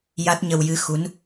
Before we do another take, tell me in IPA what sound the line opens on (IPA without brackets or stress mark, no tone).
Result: j